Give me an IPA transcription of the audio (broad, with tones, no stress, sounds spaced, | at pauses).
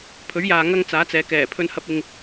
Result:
pʰ ɵ˨˥ ɥ j aː˨ ŋ ɐ˥ ŋ t͡s aː˨˥ t͡s ɛː˨˧ k ɛː˨˩ pʰ ɵ˧ n h ɐ˧ p̚ ɪ˨ ŋ